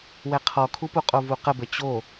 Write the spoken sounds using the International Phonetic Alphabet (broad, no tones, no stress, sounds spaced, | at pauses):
w ɛ qʰ ɔ kʰ u p u qʼ o v u q ə b ə t͡ɕ o